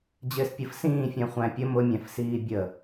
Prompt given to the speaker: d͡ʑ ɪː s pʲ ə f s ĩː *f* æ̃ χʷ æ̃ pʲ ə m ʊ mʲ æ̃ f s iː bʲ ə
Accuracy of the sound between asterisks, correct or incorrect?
incorrect